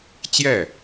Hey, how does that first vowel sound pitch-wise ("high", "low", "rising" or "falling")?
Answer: falling